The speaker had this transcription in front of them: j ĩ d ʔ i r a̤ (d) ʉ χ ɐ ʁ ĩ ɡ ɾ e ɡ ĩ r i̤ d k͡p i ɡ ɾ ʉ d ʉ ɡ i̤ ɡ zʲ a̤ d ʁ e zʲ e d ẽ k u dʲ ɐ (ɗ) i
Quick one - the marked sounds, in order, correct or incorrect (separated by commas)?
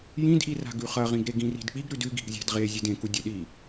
incorrect, correct